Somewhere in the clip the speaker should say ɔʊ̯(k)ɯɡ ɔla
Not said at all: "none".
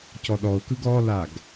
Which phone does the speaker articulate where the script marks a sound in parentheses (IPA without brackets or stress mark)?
k